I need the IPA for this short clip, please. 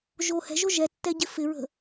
ʒ o h ɛ̤ ʒ o ʒ ɛ tː ɛ ɟ ɪ f ɪ ɹ ə̤

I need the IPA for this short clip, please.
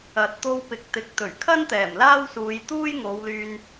ɐ˨ t̚ t̪ o˧ w p ɪ˨ k̚ t̪ ɪ˨ k̚ t̪ ɵ˨˩ ɥ kʰ ɐ˥ n t̪ ɛː˨˩ m l aː˥ w s uː˨˧ j t̪ uː˥ j ŋ o˨˧ w l yː˧ n

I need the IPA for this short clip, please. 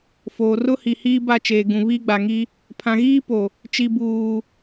f oː˨ r ʊ˦ h i˨ h iː˦ b a˦˨ t͡ʃ eː˨ ɡ ũ˨ β iː˦ ɡ͡b a˨ ŋ i˦ | pʰ ã˨ ɣ iː˦ p o˨ | t͡ʃ i˨ b uː˨

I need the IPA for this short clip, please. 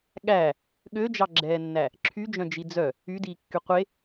ɠ æ | ɠ ø d͡ʒ ɑ ɡ͡ǁ ɛː nː æ | ǁʰ y d͡ʒ œ̃ d͡ʒ i d͡z œ | y d iː kː y qʷ e

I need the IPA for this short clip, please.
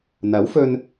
n̪ ɐ˨˥ w f ɵ˧ n

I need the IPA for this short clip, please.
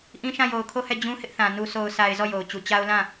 ʔ ĩ˦ ʃ ã˦˨ j o˨ ʊ̯ kʰ o˦˨ h ɛ˦˨ d͡ʑ ũ˦ h ɪ˦ ʔ θ ã˨ n u˨ sʰ o˨ ʊ̯ s a˨ ɪ̯ z ɔ˦˨ j o˨ ʊ̯ t͡ɕ u˨ t͡ɕ a˦ ʊ̯ l ã˦˨

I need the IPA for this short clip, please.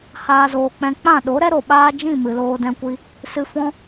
h aː˦ z oː˧ k͡p ɛ̃˦ k͡p ã˦˨ ɗ o˨˦ ɾ ɛ˦ ɾ o˨ ɓ aː˦ d͡ʒ ĩ˦˨ m ɨ˨ l oː˧ d ɛ̃˧ kʷ i˧ | s ɨ˧ f ɔ̃˦

